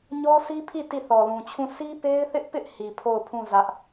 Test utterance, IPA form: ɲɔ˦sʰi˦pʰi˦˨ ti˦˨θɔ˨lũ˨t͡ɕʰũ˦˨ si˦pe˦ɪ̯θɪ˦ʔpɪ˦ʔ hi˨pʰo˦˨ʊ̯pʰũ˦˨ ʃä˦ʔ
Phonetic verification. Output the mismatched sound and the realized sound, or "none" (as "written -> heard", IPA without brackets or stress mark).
ʃ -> z